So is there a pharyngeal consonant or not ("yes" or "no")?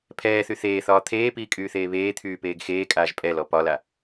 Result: no